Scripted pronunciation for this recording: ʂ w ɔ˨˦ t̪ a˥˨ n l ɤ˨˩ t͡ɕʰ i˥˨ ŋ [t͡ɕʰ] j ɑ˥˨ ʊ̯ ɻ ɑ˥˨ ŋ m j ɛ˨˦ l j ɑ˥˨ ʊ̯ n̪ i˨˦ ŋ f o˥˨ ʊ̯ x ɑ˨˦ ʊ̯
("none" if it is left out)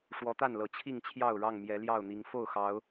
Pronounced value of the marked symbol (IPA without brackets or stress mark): t͡ɕʰ